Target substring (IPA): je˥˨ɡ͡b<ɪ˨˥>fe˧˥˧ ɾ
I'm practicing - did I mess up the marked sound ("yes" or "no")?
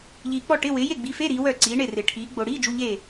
yes